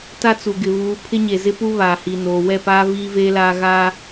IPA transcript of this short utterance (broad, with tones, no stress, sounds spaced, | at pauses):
t a˦ t͡s u˨ ɡ ɪ˨ β uː˨˦ pʰ ɪ˦ ɲ e˨ z ɪ˦ p u˦ β aː˨ h i˨ n oː˨ w ɛ˦˨ p aː˦ v iː˦ v eː˦ l aː˦ ɣ a˦